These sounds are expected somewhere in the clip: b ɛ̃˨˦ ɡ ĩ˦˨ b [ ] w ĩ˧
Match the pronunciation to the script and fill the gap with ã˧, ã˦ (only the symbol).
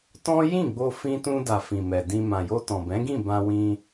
ã˧